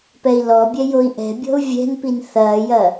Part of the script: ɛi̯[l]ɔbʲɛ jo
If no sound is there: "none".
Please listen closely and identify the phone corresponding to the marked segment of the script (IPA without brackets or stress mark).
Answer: l